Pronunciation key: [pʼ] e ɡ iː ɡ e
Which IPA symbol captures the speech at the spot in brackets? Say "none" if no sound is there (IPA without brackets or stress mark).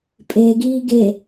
pʼ